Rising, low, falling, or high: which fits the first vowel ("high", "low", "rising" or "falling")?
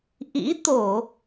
rising